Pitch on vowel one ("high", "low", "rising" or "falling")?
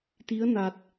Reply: rising